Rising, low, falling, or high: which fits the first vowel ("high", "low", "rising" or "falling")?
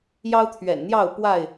high